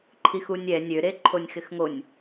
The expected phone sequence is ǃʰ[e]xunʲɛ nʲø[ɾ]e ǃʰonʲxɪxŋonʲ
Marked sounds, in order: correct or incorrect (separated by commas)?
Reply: incorrect, correct